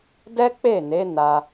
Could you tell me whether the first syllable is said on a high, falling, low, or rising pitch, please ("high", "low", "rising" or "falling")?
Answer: high